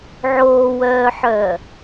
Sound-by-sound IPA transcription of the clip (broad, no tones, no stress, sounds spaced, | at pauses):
ʕ oː w œː ħ œː